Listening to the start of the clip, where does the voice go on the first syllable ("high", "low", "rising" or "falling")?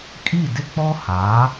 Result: falling